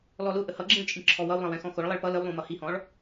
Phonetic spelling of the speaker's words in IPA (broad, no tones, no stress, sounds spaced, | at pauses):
l ɔ l ʊ ʔ ə h ʌ ɡ͡ǁ ĩ ɭ t͡ʃʼ ĩ ǁʰ ɔ w ʌ w lˠ ə̃ w ɛ̃ x ɔ̃ x ʊ ɭ lˠ i ɭ p ʌ l ə w lˠ ũ m ʌ h i h ɔ̃ ɭ